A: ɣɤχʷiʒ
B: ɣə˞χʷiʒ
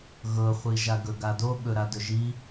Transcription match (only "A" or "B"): A